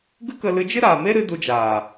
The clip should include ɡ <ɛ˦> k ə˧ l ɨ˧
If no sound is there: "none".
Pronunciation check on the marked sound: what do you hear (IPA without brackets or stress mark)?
ɨ˦